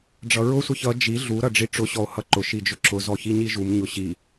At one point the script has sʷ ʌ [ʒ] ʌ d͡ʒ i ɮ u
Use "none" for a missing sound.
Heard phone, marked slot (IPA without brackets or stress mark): ç